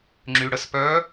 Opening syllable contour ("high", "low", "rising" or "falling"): low